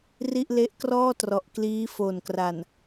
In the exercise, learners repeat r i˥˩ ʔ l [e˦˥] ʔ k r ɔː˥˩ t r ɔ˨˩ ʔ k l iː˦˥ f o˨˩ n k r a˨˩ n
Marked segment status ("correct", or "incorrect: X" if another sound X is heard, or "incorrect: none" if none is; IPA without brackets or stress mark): correct